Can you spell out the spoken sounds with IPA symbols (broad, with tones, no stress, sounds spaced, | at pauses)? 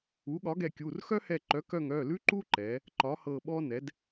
u˩˥ ɠ ɒ˩˥ ɡ ɛ˧˩ kʲ u˩˧˩ r x œ˦ h ɛ˧˩ ǃ œ˩˥ k œ˧˩ ŋ œ˩˧˩ l ʉ˦ ǃ u˦ ǃ ɛ˩˥ | ǃ ɒ˩˥ h ɤ˧˩ ɓ ɔ˦ n ɛ˩˥ d